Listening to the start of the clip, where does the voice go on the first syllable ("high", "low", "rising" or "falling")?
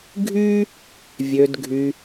high